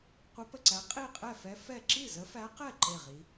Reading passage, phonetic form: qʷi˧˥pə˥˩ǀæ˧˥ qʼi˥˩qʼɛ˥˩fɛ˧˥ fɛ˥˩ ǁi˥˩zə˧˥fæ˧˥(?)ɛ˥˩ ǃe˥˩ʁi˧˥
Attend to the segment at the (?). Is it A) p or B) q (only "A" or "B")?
B